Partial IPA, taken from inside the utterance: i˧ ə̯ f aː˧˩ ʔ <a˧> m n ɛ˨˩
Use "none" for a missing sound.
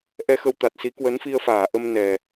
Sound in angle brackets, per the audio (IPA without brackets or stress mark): ə˧